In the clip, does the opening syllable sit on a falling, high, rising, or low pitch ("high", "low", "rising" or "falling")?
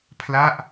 falling